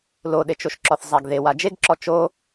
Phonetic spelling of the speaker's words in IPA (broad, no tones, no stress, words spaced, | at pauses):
loɗet͡ʃoʃǁɔθ zˤaɡðewa d͡ʒeɡǁɔ t͡ʃo